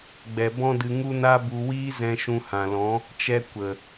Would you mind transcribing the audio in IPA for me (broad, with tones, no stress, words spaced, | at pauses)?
ɡ͡bɛ˨bɔ̃˦dɨ˧ ŋu˦na˦bu˧ wiː˦zɛ̃˧ ʃũ˧ hã˨lɔ̃˨˦ | t͡ʃɛ˦ kʷə˨